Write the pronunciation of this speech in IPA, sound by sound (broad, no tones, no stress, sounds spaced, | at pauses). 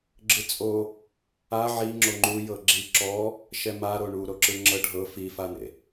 ɡ͡ǁ ɯ t͡sʼ o | a ʕ i ŋ͡ǁ o ŋ͡ǃ u j ɤ ɡ͡ǁ i ǁ ɔ | ʃ ɛ m a ɾ o ɳ u ɾ o ǁ ɯ ŋ͡ǁ ɤ ɖʱ ɤ f i f a n̪ ḛ